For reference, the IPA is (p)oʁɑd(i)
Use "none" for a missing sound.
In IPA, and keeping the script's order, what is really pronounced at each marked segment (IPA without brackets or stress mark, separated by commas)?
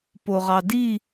p, i